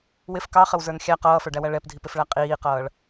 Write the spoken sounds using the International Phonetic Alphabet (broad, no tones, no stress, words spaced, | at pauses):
wɪf kɑχəwzə˞n xʲæ qʌːfə˞ɖæwæ ɭɛpdʱipɪfɭæ qʼiːqʌːɭ